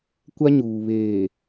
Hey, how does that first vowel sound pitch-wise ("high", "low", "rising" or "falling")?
high